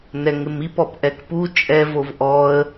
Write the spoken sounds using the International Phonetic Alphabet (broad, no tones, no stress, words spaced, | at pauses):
nɛŋɪmip ɔpʔɛkpu t͡ʃʼɛvov ʔɔə̯